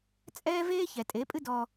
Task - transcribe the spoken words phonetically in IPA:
t͡sʼɛː˦veː˦ çɛ˨tʼe˨˦pʼɨ˦ dɔ˧

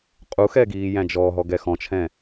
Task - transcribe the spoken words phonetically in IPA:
qʼuxɛɡiː jæ̃d͡ʒɔɦɔ ɡɛxɔ̃t͡ʃʰɛ̃

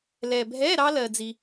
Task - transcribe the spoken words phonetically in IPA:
lɛ˨bʱɛ˧˥˧ ɾɑ˥lɜ˨d͡zi˨

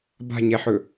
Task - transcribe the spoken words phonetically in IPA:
ba̤ɲɛħɵ

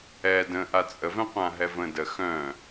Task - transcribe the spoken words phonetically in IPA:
ɛ də̃ ʔat͡sʼə vɛ̃qʷãɦɛvə̃ də xœ̃

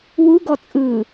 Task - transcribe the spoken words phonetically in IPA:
wuɡɔ t͡sʼɯ

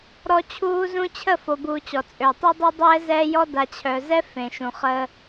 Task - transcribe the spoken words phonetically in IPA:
ɾɔ˦t͡ɕʰuː˦zũ˦ t͡ɕʰə˦˨fo˨buː˨ t͡ɕɔ˨t͡sʼø˨ tˤɛ˦dˤəː˦dˤɛː˦ zɛː˦jɔ˦ da˨t͡ɕʰœ˨zɛ˦ fẽ˨ʃũ˨χəː˦

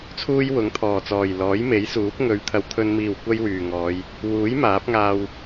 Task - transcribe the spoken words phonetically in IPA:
t͡sʰuː˥jwʊ˨˥ŋt̪ʰɔː˨˩t͡sɔː˨˩j lɔː˨˥jme˨˥jsuː˨˥p̚ ŋɵ˨˧ɥt̪ʰɐ˨wt̪ʰɵ˧n miː˨˩w kʷɐ˥jwyː˨˩ŋɔː˨˧j | wuː˨˥j maː˨˥p̚ŋaː˧w

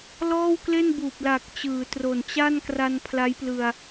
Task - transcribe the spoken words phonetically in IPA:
lɔː˥˩wkle˥˩nbuː˨˩p̚la˨˩k̚ t͡ɕɯː˩˦tro˨˩nt͡ɕa˥˩nkra˧n pʰla˦˥jplɯ˧a̯

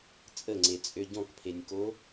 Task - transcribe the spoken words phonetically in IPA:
t͡sʼəŋ͡ǀet͡sʼø ɟɔ̃kpʰenʲko

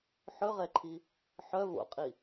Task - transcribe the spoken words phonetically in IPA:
ħɵʁɛǃʰi | ħœ vo̰qʼi

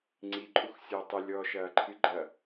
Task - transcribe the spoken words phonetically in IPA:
ŋ͡ǀi ǃʼuxsʲoːtˤɨ lʲɔːʃɐːǃʰɨ ɡ͡ǃɐ

